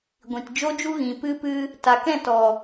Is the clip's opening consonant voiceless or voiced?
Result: voiced